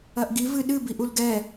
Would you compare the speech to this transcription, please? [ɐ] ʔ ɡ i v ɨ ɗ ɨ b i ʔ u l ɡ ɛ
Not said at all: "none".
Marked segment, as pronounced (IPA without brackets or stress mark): ɐ